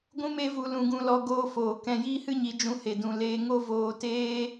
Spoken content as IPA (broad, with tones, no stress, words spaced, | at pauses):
ɡʷũ˦me˦vu˧ lũ˧ ɡũ˧lɔ˧ ɡoː˧foː˨ kɛ̃˧jiː˦hɨ˦ɲi˨˦ d͡ʒũ˧ he˨dũ˨ leː˧ŋo˦voː˧teː˦